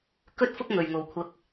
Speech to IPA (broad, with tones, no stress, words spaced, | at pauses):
kɵ˥t̚ fʊ˥k̚ ŋɵ˨ɥ ŋo˨wkʷʰɐ˧k̚